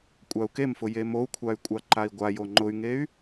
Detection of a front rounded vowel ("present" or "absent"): present